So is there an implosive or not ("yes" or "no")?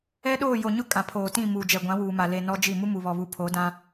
yes